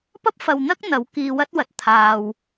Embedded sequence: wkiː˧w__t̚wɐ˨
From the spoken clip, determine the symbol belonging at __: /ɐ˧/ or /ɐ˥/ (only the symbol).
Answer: ɐ˥